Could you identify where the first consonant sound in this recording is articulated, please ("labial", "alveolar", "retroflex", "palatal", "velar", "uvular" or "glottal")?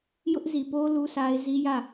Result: palatal